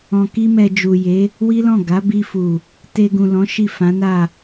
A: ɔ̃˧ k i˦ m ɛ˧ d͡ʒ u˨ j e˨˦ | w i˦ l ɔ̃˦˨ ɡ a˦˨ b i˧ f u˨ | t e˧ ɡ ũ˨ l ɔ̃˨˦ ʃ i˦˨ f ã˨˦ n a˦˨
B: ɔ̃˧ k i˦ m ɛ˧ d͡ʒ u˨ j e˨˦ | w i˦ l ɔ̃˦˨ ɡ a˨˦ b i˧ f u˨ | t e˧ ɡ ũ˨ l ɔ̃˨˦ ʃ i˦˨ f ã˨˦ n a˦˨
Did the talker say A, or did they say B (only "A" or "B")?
B